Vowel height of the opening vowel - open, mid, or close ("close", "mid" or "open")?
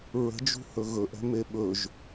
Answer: mid